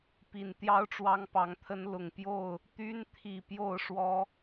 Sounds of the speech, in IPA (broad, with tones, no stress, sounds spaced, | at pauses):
p i˨˩ n t̪ j ɑ˦ ʊ̯ ʈ͡ʂ w ɑ˦ ŋ p ɑ˨˦ ŋ t̪ʰ ə˦ n l ʊ˨˩ ŋ p j o˥˨ ʊ̯ | t̪ y˦ n t̪ʰ i˨˩ p j o˥˨ ʊ̯ ʂ w ɔ˦